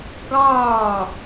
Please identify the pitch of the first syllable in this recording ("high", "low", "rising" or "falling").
falling